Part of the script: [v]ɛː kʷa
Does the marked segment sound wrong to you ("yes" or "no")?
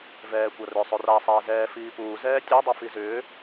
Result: no